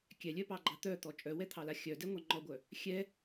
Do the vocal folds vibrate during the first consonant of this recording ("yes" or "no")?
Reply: no